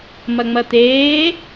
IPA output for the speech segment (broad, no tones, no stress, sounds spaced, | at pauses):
m ɐ ŋ͡m ɐ t̪ eː